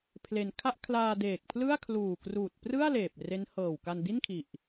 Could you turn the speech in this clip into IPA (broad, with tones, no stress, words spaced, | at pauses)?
pʰle˧n kʰa˥˩ʔ kʰlaː˧ deː˨˩k̚pʰlɯ˥˩a̯ kʰluː˨˩kruː˨˩t̚ prɯ˥˩a̯ leː˨˩p̚re˦˥nhɤː˨˩wka˧n di˥˩nkʰi˨˩ʔ